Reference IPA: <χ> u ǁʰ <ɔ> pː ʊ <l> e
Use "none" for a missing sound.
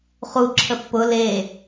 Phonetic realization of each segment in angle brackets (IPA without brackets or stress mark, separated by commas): χ, ə, l